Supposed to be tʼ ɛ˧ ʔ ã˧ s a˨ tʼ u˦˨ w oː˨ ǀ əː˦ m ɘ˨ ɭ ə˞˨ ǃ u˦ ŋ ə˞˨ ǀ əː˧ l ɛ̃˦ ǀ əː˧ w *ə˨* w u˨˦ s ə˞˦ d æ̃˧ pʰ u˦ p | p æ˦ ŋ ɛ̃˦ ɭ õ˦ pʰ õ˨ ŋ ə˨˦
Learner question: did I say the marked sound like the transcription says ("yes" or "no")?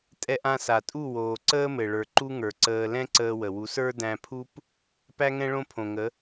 yes